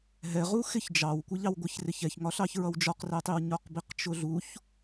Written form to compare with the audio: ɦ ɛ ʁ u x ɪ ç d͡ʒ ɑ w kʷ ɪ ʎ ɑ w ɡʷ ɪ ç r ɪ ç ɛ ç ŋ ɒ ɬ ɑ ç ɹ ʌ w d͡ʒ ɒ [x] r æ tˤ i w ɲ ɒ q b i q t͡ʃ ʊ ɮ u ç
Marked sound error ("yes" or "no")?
yes